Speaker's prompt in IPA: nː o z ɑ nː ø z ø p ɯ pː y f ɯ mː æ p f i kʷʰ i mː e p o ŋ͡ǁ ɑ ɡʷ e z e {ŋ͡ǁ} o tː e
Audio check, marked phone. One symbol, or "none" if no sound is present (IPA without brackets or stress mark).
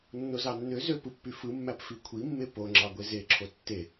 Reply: ǁʰ